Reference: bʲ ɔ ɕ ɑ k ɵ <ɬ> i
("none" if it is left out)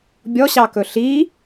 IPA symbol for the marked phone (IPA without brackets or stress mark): ɬ